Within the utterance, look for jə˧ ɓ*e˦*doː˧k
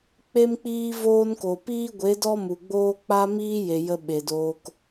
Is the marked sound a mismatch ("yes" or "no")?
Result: yes